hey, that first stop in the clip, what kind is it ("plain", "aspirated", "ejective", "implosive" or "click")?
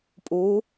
ejective